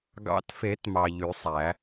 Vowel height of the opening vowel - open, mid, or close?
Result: open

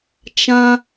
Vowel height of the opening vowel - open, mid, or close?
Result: open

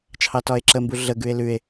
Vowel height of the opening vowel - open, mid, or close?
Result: open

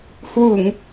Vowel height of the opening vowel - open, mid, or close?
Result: close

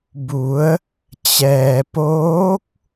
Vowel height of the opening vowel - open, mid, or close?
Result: close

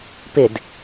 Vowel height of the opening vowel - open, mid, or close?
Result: close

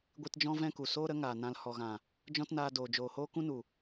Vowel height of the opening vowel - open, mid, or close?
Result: close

